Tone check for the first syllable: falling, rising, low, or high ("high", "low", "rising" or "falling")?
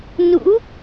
rising